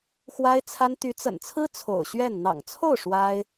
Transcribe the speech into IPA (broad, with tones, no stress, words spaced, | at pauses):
xwa˥ɪ̯t͡sʰa˥n t̪y˧˥t͡sə̰˨˩nt͡sʰɹ̩˥ t͡sʰo̰˨˩ʊ̯ɕɥɛ˥˩n n̪ɑ̰˨˩ŋt͡sʰo˥˩ʊ̯ ʂwa˥ɪ̯